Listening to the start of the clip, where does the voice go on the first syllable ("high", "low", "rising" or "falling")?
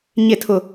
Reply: falling